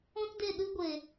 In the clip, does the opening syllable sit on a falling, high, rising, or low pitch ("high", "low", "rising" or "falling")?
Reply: high